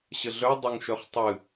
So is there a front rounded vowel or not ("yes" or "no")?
yes